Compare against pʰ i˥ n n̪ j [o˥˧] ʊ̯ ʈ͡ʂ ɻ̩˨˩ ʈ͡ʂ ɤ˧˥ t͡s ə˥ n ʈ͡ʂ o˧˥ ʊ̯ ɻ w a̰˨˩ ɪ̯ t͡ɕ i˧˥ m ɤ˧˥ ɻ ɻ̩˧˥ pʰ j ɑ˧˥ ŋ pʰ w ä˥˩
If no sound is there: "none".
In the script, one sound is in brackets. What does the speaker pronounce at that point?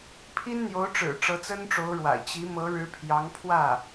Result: o˧˥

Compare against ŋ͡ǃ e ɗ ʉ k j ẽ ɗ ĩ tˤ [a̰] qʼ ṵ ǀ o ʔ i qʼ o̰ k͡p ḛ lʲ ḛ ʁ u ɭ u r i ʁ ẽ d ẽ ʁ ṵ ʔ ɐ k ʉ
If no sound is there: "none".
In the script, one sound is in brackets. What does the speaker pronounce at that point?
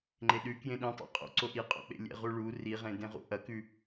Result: a̰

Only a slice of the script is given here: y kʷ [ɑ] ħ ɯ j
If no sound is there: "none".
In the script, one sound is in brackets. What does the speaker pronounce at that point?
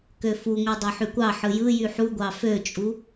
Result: ɑ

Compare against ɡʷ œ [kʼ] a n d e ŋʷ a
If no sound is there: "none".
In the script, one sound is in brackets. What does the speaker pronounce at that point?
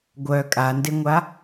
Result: kʼ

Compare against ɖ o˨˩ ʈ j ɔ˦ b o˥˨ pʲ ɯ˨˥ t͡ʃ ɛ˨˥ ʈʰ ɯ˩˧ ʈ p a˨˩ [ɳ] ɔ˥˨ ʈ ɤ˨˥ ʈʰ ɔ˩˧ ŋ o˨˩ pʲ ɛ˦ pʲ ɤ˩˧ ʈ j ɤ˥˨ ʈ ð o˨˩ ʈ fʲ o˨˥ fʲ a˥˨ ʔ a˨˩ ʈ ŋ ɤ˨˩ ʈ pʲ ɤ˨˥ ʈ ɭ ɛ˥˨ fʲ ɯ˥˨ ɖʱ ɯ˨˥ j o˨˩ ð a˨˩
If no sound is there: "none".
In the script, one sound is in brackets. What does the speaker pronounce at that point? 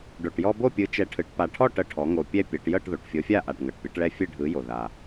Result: ʈʰ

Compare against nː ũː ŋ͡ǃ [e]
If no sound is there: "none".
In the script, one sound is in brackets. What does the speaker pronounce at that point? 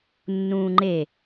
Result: e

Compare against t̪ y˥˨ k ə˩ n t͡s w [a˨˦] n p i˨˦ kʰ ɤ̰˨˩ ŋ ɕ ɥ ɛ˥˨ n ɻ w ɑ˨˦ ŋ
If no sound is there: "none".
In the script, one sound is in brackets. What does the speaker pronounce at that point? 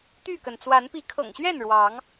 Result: a˨˦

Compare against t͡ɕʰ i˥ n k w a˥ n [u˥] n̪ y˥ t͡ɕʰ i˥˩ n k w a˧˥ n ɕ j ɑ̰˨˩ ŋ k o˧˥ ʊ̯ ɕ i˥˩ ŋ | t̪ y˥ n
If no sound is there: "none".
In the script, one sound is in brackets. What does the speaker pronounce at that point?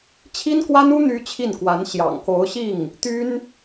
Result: u˥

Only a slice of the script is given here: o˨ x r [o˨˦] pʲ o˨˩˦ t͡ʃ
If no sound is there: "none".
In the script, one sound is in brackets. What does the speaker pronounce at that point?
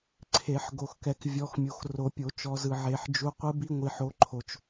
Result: o˨˩˦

